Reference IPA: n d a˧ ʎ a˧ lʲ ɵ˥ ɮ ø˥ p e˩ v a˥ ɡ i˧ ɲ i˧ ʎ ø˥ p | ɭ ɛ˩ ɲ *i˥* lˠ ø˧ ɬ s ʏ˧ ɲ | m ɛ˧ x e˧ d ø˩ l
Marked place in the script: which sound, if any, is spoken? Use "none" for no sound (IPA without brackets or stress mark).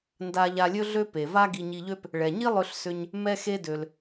i˥